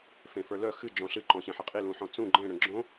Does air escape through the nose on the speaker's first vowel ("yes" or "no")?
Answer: yes